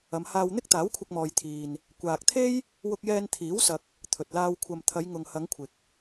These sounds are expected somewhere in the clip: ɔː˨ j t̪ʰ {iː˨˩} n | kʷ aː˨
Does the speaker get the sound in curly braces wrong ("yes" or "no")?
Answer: yes